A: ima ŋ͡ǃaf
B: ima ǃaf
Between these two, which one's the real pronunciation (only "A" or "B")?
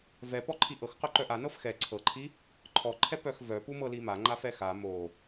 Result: A